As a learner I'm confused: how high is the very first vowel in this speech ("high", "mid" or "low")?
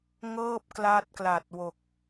mid